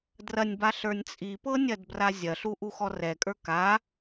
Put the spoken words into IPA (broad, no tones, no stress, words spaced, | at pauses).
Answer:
drɐnʲba ɬə˞nʲt͡sʼipɤ nʲɐdbrazʲɐɬu ʔuxɔrɛkʼə˞ ka